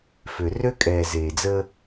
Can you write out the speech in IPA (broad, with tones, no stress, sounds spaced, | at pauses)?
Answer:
f ø˨ r ø˦ kʼ ɛː˨ z eː˨ d͡z əː˦